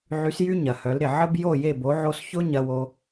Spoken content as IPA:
ʕ y˩˧ s j y˧ ɲ ɐ˩ h œ˩˧ l ɾ ɪ˩ ʕ ə˧ b j o˧˩ j e˧˩ b o˩˧ ʕ o˧ s ç ʊ˧ ɲ ɐ˧ w o˧

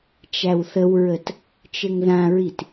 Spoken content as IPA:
t͡ʃ æ w θ ə w ɹ ə t | t͡ʃ ɘ ŋ ð ã ɹ i t

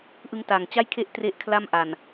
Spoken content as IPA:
ʔ ɯ˦˥ ŋ t a˨˩ ŋ t͡ɕ a˥˩ j kʰ e˥˩ ʔ t r e˥˩ ʔ kʰ l a˥˩ m ʔ a˨˩ n

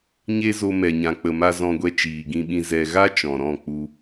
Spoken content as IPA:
ɲ e˦ z o˧ m ɛ˨ ɲ ã˨ k͡p ə˨ m a˧ z ɔ̃˧ ɡʷ ɛ˧ t͡ʃ iː˨ ɡ ĩ˦ ɓ ĩ˦ z ɛ˧ ɣ a˦ t͡ʃ ɔ̃˨ ɾ ɔ̃˦˨ k͡p u˧

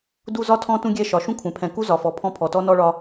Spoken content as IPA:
d u˦ z ɒ˦ tʰ ɔ̃˦ t ũ˦ ɡʲ ɛ˦˨ ʃ ɒ˨ ʃ ũ˦ kʷʰ ɛ̃˨ pʰ ɛ̃˨ k u˦ z ɒ˨ f ɔ˨ pʰ ɔ̃˦ pʰ ɔ˨ t ɔ˦ n ɔ˦ ɭ ɒ˦

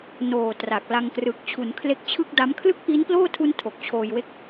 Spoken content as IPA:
n oː˨˩ t r a˨˩ k̚ l a˧ ŋ k r ɯ˨˩ k̚ t͡ɕʰ u˩˦ n kʰ l e˦˥ k̚ t͡ɕʰ ɯ˥˩ k̚ d a˦˥ m kʰ l ɯ˥˩ k̚ ʔ i˦˥ n p l oː˥˩ tʰ u˦˥ n tʰ o˨˩ k̚ t͡ɕʰ oː˧ j w e˥˩ k̚

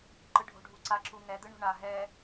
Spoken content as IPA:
ǃ ɯ ɖʱ o̤ ɖʱ u ǀ a ǁ u ŋ ɛ d̪ ɯ ɳ o̤ ɳ a ɦ ɛ

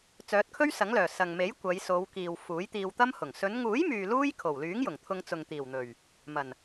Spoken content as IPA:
t͡s œː˨˥ t̚ kʰ ɵ˥ ɥ s ɐ˨˥ ŋ l œː˨˩ s ɐ˨ ŋ m e˨˥ j kʷ ɐ˨˧ j s o˨˧ w k iː˨ w f uː˨˥ j t̪ iː˧ w t̪ ɐ˥ m h ʊ˨˩ ŋ s ɵ˨˧ n ŋ uː˨˥ j m yː˨ l uː˥ j kʰ o˨˩ w l yː˨˥ ŋ j ʊ˨˩ ŋ t̪ʰ ʊ˧ ŋ t͡s ʊ˨ ŋ t̪ iː˨˩ w n̪ ɵ˨˩ ɥ | m ɐ˨˩ n

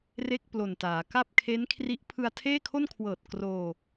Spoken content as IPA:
r e˥˩ k̚ p l o˨˩ n t aː˩˦ k a˥˩ p̚ kʰ e˦˥ n kʰ r i˦˥ ʔ pʰ ɯ˧ a̯ tʰ eː˥˩ kʰ o˥˩ n kʰ w ɤː˨˩ t̚ k r oː˧

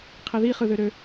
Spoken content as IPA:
qʰ i ð i χ ɯ ð ø ɾ ø

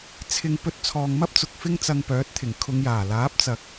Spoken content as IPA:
t͡sʰ ɪ˧ ŋ p ɵ˧ t̚ t͡sʰ ɔː˨ ŋ m ɐ˥ p̚ t͡s ʊ˨ k̚ f ɪ˥ ŋ t͡s ɐ˧ ŋ p œː˨˥ t̚ t̪ʰ ɪ˨˩ ŋ kʰ ʊ˨˧ ŋ j aː˨˩ l aː˨˥ p̚ t͡s ɐ˨ k̚

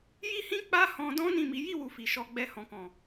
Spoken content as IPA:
j i˦ h ĩ˦ k͡p a˦ h ɔ̃˧ d ɔ̃˦ n ĩ˦˨ m i˨˦ j i˦˨ w u˨ f i˨ ʃ ɔ˧ ɡ͡b ɛ˧ h ɔ̃˨ k ɔ̃˨

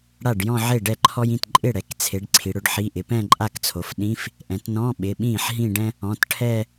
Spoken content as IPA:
ɽ a˥˩ ɖ j ɔ̃˥˧ ʕ e˥˩ ɖ ɛ˥˩ ǃʰ ɔ˥ j ĩ˩˧˩ t ǃʼ ɪ˥˩ ɽ ɛ˩˧ k t͡sʰ e˩˧ ɖ ǀʰ i˩˧ ɽ ʊ˧˥˧ ɖ ħ i˧˥˧ ʔ ɪ˩˧ p ɛ̃˥˧ ǃʼ a˥˩ k t͡sʰ o˩˧ f ɗ ĩ˧˥˧ f | ʔ ɛ̃˩˧ t n ɔ̃˧˥˧ ɓ ɪ˩˧˩ ɓ ĩː˥˩ ħ ɦ ĩ˥˧ ɖ ɛ̃˥ | ɔ̃˩˧˩ t ʈʰ ɛ˥˧

